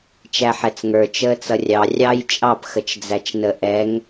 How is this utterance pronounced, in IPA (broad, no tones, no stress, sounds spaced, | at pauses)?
t͡ʃ æ ħ ɛ t͡s ŋ ə˞ t͡ʃ əː t͡s ʌ rʲ ɑ rʲ ɑ j t͡ʃʼ ɑ p x ə t͡ʃ d͡z æ t͡ʃ n ə ʔ ɛ ŋ